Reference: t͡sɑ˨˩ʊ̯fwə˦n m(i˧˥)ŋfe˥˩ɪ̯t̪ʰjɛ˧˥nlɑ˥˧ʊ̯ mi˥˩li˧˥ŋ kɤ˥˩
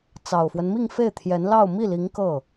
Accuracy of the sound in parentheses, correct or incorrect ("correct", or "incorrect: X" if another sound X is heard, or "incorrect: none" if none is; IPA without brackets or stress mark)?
incorrect: i˥˧